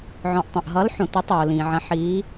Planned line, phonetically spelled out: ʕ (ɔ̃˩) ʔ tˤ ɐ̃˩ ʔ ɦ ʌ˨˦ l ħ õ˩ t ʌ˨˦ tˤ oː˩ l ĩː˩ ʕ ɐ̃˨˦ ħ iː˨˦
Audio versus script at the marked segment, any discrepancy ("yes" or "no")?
no